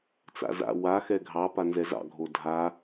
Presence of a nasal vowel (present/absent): absent